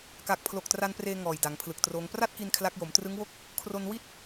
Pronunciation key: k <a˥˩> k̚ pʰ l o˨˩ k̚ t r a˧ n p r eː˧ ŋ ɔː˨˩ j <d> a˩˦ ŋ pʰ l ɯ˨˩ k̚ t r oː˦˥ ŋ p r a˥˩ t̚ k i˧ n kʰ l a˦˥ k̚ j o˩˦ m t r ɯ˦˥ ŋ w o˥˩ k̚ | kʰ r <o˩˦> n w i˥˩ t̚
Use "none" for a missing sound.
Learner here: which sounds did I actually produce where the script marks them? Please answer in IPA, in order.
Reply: a˨˩, d, o˧

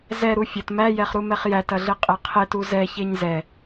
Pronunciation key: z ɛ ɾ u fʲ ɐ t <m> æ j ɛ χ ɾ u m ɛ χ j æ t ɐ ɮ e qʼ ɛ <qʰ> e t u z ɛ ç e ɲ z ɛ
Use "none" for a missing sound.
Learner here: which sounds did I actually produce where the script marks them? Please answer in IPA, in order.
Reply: m, qʰ

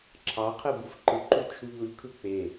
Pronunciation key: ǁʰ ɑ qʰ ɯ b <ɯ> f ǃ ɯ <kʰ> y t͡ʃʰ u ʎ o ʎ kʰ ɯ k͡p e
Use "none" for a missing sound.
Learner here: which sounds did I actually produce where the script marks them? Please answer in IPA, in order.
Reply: u, ǃ

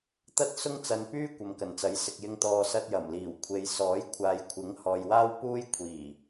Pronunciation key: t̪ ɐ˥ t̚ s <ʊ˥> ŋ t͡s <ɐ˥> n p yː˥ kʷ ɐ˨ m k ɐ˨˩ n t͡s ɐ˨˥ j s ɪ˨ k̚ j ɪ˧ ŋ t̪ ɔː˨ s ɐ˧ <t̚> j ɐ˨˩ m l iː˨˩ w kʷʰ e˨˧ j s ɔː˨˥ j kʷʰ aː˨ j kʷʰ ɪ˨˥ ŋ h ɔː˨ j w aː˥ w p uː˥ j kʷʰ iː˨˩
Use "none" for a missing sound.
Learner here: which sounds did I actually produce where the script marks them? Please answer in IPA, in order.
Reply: ʊ˥, ɐ˧, t̚

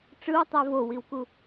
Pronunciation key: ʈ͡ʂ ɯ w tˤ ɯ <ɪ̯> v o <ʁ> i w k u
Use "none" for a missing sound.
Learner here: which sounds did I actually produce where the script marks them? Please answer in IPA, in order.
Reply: ə̯, w

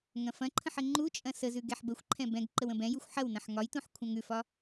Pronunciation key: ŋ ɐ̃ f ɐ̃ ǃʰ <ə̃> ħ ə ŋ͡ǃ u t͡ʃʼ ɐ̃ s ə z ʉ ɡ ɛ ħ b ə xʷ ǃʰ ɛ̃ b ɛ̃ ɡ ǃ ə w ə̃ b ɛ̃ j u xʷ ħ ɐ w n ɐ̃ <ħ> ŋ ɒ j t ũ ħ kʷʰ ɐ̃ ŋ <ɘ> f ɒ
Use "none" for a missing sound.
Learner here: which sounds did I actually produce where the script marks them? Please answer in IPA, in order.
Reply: ə̃, ħ, ʉ

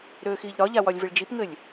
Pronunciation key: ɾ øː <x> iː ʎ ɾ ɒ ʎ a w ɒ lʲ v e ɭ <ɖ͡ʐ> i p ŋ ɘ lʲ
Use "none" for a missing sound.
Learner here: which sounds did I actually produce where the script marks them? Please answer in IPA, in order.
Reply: x, d͡ʒ

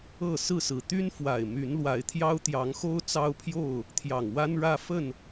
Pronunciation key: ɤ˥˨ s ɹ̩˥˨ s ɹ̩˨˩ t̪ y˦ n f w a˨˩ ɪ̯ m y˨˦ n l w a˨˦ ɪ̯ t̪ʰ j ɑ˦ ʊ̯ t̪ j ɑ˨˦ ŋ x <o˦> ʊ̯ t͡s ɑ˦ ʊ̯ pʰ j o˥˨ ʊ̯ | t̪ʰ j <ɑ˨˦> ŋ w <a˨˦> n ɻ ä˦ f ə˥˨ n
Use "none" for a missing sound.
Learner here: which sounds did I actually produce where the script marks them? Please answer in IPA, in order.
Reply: o˦, ɑ˨˩, a˦

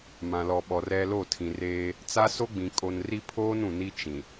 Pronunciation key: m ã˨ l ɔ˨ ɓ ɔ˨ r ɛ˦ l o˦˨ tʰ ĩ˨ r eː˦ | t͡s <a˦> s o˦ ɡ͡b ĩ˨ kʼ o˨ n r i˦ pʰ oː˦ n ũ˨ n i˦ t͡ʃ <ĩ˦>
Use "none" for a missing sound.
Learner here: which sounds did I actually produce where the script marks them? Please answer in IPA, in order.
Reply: a˦, ĩ˨

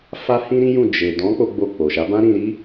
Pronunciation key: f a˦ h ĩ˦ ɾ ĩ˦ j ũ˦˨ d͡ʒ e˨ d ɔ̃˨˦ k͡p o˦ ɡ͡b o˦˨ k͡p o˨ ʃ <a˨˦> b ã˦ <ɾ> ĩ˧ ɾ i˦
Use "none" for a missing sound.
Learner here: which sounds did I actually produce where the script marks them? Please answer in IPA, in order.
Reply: a˨˦, ɾ

